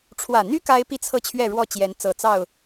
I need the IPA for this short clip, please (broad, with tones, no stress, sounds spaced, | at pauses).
ʈ͡ʂʰ w ä˨˩ n̪ y˦ k a˦ ɪ̯ p i˥˨ t͡sʰ ɤ˥˨ t͡ɕʰ ɥ ɛ˥˨ ɻ w ɔ˥˨ t͡ɕ j ɛ˨˦ n t͡s ɤ˨˩ t͡s ɑ˥˨ ʊ̯